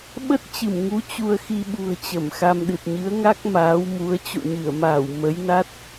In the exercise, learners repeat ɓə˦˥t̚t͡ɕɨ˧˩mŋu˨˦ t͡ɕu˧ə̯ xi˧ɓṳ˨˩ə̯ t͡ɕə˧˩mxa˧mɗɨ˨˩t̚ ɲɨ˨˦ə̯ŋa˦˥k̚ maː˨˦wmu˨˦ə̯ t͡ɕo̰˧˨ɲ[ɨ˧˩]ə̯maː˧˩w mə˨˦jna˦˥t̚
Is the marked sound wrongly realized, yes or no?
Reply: no